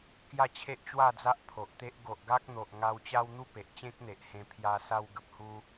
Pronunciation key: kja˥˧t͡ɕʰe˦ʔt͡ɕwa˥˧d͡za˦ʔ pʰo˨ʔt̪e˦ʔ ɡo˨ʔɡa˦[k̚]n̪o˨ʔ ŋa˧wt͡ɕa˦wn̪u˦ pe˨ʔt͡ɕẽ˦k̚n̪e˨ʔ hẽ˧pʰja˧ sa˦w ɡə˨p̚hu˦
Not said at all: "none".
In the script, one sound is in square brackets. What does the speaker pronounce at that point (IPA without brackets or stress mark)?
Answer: k̚